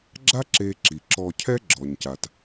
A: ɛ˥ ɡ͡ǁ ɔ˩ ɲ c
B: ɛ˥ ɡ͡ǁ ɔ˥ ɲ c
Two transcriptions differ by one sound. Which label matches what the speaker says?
A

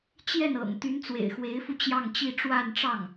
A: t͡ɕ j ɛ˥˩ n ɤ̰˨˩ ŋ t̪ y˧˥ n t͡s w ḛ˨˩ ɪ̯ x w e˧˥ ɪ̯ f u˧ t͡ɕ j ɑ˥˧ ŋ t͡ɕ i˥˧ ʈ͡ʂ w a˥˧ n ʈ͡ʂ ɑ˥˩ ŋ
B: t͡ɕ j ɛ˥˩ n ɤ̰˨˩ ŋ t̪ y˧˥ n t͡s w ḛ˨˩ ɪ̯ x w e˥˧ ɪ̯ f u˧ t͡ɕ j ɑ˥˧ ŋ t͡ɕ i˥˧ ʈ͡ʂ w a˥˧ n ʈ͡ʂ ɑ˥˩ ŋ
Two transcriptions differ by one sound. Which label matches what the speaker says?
A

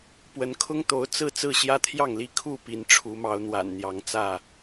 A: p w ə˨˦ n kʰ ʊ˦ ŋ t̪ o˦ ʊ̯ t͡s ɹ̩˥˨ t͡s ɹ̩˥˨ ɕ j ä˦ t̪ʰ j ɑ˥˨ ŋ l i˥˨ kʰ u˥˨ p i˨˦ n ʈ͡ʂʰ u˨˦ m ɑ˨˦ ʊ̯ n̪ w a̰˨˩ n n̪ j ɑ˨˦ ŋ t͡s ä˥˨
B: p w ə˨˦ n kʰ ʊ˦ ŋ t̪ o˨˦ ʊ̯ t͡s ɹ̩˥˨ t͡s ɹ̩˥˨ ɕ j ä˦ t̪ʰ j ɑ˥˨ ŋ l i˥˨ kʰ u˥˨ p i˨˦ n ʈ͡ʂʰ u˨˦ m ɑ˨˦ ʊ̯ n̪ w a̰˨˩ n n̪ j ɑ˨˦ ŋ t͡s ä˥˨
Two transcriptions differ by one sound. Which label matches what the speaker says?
B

